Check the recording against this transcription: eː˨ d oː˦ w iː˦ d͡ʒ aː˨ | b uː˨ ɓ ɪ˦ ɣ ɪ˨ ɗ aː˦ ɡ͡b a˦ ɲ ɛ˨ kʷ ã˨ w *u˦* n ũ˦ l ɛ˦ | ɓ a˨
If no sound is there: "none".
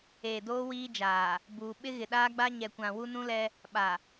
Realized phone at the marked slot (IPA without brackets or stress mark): u˦